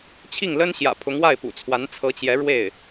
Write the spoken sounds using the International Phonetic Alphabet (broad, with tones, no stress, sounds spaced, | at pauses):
t͡ɕʰ i˥˩ ŋ l ə˥ n ɕ j ä̰˨˩ pʰ ʊ˧˥ ŋ w a˥˩ ɪ̯ p ṵ˨˩ t͡sʰ w a˧˥ n t͡sʰ ɤ˧˥ t͡ɕ j ɛ˧˥ ɻ w e˥˩ ɪ̯